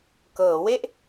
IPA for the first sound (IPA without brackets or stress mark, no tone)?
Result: k